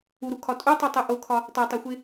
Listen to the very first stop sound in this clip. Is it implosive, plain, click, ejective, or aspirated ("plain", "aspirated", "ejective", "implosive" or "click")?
aspirated